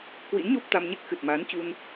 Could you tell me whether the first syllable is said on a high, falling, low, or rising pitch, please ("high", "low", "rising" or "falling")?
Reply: rising